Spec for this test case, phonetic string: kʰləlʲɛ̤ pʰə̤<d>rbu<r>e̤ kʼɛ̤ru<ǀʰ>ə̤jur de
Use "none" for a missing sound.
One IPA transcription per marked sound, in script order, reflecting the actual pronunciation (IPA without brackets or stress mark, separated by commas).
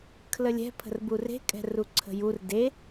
none, r, ǀʰ